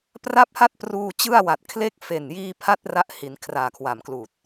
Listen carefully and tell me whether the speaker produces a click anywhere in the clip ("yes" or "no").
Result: no